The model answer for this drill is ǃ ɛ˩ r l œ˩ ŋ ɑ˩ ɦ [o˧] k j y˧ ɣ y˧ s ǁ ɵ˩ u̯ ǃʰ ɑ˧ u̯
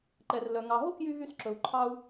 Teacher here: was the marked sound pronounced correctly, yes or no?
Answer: no